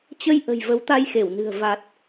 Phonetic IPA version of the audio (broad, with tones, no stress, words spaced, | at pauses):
t͡ɕə˧jʔə̤˨˩j və˨˦wt̪a˧jxe˧˩wnɨ̤˨˩ə̯ va˨˩t̚